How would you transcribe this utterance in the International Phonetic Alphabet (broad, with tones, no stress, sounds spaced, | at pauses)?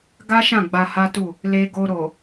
ɡ a˦ ʃ ã˦˨ ɡ͡b a˧ h a˦ t u˦˨ | l e˧ ɡ o˧ ɾ o˨